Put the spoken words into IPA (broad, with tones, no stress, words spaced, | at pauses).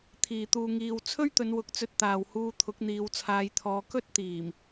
t̪ʰiː˨t̪uː˧ŋiː˧w t͡sʰɵ˥ɥt̪ɵ˨˧n wʊ˧k̚ t͡sɵ˧t̚t̪aː˨whuː˧ t̪ʰʊ˨˥k̚n̪iː˨˧wt͡sʰaː˨˧jt̪ʰɔː˨˧ kɵ˥t̚ t̪iː˨˩m